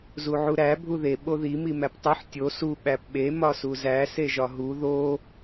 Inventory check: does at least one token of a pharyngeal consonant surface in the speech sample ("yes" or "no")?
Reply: yes